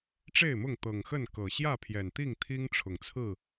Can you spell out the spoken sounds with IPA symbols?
ʈ͡ʂe˥˨ɪ̯mʊ˥˨ŋ t̪ɤ˨˩ŋxə˥˨nkɤ˨˩ ɕjä˥˨pʰjɛ˨˩nt̪i˥˨ŋ t̪ʰi˦ŋʈ͡ʂʰʊ˨˩ŋt͡sʰɹ̩˥˨

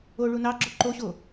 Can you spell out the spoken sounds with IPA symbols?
o ɭunɑɡ͡ǁo ǃoɕo

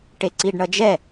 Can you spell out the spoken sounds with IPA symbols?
ʈeǀiɖɳʌd͡ʒɛ

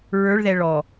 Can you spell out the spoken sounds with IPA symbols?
ɹə˞ɭðɛ ɭɔ

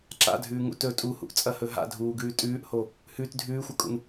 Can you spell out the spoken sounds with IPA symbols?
ǁa̰dʱʉːŋṵ tɵ tʼuhṵʔt͡sʼɐhɵ ɦa̰dʱuːɡʉː tʼʉːʔho | hʉt dʱʉːxʷɐkʼṵn

